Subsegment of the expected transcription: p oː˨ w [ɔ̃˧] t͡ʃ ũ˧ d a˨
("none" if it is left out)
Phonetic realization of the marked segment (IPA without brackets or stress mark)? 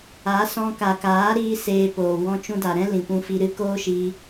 ɔ̃˧